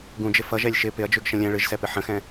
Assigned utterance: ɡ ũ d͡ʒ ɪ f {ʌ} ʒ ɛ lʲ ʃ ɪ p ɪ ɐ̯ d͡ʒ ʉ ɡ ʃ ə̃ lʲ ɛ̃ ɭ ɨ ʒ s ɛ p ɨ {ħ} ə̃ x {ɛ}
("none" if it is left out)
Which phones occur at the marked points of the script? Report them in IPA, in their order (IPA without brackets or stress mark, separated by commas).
ʌ, ħ, ɛ̃